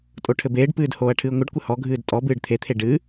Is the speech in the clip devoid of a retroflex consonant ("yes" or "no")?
no